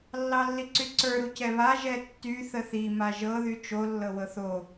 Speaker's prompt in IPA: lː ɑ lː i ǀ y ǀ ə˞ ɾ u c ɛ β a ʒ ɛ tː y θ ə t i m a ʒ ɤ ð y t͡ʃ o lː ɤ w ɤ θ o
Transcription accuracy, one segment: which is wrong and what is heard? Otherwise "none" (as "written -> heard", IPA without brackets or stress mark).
t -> θ